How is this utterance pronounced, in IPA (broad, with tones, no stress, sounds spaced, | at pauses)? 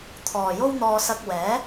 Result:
t̪ʰ ɔː˨ j o˥ w n̪ ɔː˧ s ɐ˧ k̚ w ɛː˨˥